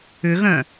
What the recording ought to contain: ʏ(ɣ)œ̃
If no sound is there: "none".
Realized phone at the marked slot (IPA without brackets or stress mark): ɣ